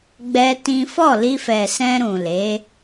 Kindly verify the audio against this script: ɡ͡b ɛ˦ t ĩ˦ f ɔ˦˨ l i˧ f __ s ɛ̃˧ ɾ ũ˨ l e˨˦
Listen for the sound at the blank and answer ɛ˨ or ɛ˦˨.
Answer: ɛ˨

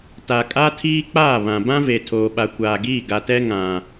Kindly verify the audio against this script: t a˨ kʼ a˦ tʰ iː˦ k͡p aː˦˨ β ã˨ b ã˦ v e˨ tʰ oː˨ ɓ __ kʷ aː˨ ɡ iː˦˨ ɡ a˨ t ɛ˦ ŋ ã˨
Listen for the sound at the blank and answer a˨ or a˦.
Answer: a˨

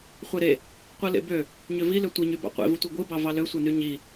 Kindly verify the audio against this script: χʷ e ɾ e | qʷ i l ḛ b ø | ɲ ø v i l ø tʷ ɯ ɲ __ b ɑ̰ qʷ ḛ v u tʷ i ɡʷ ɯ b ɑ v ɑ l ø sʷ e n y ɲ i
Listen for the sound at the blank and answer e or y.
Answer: y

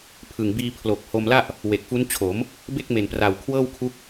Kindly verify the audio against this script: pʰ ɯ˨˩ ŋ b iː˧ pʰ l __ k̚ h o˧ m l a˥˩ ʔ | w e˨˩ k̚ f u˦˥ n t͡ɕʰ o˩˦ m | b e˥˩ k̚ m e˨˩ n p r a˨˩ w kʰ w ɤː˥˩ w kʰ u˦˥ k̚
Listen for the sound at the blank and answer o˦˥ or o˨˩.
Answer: o˨˩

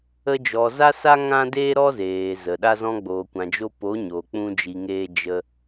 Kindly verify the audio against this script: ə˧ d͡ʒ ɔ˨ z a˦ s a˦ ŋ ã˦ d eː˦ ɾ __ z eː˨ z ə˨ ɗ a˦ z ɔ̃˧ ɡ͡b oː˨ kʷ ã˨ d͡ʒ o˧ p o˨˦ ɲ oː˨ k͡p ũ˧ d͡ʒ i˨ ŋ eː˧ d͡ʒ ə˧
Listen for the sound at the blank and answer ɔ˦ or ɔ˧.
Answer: ɔ˦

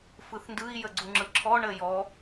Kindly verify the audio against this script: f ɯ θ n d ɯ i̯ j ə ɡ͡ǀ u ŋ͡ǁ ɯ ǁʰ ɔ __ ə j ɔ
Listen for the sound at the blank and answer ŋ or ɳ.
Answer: ɳ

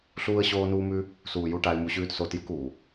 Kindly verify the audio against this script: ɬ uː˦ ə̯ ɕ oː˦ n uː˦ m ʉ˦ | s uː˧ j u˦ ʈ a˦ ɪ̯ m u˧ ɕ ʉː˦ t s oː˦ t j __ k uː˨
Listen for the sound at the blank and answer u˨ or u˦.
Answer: u˦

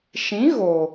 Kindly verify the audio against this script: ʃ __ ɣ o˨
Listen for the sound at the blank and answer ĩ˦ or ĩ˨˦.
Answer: ĩ˨˦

